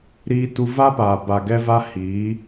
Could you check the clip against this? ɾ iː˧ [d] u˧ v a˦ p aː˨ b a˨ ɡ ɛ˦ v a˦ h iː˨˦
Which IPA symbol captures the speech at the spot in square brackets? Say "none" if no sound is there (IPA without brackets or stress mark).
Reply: t